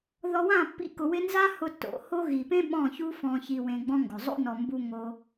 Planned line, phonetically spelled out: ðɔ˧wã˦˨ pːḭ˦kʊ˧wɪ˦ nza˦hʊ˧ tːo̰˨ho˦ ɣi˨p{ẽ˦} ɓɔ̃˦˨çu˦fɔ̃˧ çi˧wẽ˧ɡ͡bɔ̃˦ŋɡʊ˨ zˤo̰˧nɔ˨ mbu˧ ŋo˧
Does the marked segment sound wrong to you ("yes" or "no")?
no